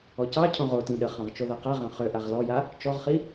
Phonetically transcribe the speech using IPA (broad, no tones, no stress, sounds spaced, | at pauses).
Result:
ɔ c ɑ cʰ õ ʁ o t ĩ ɗ ə χ ɑ̃ ʁ t͡ʃ o ð a q a ʁ ɑ̃ χ ø ʔ a ʁ l ɔ j a | t͡ʃ ɔ ʁ χ i